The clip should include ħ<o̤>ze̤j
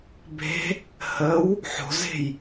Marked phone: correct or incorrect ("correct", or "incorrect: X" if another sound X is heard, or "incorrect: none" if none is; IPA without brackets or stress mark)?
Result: correct